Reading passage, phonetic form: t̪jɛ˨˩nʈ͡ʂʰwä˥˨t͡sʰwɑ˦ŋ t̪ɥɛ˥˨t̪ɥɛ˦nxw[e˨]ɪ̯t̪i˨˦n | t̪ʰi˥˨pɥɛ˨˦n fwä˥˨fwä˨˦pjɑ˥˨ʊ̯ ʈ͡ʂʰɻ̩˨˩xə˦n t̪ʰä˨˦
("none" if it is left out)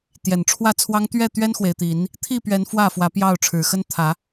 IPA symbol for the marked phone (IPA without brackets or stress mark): e˨